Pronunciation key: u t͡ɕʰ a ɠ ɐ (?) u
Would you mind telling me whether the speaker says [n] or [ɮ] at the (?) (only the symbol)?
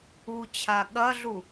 ɮ